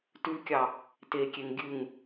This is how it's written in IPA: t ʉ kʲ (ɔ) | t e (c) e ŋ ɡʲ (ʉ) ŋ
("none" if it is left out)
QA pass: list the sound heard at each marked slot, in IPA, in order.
ɑ, kʲ, ʉ

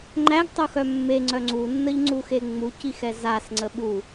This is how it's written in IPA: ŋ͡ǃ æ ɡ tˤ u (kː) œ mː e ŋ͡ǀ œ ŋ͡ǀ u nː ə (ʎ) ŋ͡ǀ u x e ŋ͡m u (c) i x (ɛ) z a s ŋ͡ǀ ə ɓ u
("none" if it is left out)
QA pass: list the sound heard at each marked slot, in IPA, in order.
x, ʎ, c, ɛ

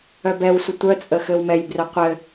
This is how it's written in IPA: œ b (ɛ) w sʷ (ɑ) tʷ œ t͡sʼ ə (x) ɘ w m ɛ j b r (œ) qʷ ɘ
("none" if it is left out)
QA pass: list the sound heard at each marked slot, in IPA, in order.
ɛ, ə, x, œ

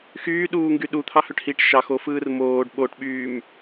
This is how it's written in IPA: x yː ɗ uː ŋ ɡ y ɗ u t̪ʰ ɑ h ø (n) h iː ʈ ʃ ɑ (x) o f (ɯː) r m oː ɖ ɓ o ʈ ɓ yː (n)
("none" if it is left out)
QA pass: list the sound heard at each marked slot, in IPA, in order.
ʈ, x, ɯː, m

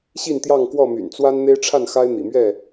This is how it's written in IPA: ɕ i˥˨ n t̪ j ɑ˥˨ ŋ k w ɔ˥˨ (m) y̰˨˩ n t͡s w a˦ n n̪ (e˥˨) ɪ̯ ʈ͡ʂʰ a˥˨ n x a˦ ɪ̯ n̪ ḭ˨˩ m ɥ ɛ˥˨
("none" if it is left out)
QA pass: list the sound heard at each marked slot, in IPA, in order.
m, e˦

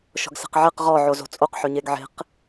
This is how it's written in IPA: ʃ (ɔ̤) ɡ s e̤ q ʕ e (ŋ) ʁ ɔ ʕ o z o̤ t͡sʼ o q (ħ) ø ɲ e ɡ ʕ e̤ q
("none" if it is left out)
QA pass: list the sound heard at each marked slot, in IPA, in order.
ɔ̤, q, ħ

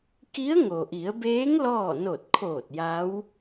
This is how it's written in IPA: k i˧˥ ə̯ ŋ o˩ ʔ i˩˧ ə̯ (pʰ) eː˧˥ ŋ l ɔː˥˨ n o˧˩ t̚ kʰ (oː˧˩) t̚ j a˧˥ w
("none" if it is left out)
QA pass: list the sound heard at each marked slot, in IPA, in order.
b, oː˧˩

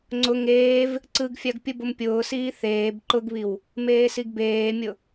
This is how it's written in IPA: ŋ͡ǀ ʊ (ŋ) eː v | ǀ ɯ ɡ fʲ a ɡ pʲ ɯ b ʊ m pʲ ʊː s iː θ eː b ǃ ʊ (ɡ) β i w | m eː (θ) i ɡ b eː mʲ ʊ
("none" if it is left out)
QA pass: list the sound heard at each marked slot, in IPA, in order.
ŋ, ɡ, s

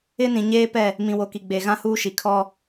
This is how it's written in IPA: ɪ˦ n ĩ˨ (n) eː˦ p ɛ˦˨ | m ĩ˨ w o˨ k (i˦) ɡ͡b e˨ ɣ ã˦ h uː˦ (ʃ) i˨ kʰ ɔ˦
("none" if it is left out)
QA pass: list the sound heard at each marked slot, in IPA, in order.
ɲ, i˨, ʃ

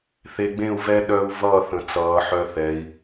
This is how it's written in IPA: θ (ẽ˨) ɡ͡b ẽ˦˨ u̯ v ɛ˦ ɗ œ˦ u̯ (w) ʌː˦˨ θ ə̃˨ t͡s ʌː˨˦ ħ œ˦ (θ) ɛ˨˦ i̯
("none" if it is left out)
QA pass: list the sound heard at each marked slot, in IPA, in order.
e˨, v, θ

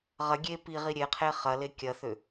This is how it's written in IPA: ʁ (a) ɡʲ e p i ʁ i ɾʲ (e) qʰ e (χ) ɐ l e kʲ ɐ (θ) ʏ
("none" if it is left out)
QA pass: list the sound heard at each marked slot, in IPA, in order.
ɐ, e, χ, θ

